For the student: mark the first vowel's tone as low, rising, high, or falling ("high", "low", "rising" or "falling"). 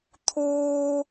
high